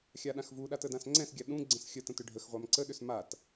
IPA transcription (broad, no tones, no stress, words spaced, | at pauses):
xʲaɗãxvuɗa tədãsŋ͡ǀɛ̃sɡʲa ɗũɡ͡ǀə̃s xʲətə̃t ʏɖʱəxʁʷam ǀəɗʏs mat